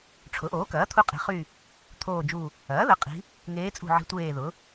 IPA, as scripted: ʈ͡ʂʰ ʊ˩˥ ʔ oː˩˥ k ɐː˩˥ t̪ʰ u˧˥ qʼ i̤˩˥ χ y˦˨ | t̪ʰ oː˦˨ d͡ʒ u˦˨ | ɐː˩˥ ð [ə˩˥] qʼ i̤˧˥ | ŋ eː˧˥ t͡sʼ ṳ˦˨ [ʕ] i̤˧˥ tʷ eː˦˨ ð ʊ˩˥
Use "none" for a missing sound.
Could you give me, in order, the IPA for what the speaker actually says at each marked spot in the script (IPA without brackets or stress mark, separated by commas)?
ə˩˥, ʕ